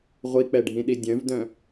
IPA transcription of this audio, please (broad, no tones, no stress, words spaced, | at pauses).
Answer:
ʁʷik͡pɛɖʱĩɗi dʲœ̃vdœ̃